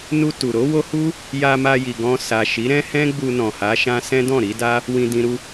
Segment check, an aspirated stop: absent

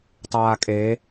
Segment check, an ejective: present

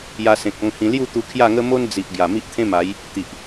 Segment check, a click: absent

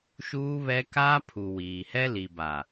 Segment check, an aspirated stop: present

